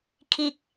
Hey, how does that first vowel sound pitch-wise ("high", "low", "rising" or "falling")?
high